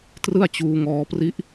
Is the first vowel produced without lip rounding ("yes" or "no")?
yes